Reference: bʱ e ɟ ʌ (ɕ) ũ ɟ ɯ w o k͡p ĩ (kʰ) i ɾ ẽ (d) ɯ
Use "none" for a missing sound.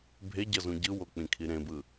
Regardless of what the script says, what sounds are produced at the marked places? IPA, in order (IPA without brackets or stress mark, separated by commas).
z, kʰ, b